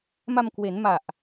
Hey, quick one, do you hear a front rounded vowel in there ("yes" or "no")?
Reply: no